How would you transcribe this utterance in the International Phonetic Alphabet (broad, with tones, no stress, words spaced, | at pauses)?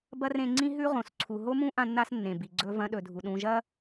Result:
bɐ˥rẽ˦ŋ͡ǀĩ˥ ɦʉ˥ʁõ˨sǀʰu˨ ɦo˥mũ˥ ʔã˦nːa˦snːẽ˩bi˩ ɡ͡ǀɵ˨vɐ̃˨ɗɵ˩ dʱu˩ɗũ˨ ʒɐ˥